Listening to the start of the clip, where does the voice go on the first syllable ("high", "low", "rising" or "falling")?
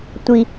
low